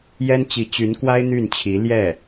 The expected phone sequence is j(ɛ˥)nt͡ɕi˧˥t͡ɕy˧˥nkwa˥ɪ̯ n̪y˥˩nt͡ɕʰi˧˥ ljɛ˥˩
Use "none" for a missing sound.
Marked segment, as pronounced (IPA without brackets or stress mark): ɛ˥